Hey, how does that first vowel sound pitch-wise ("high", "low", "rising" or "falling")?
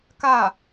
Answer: falling